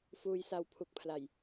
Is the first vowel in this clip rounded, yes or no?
yes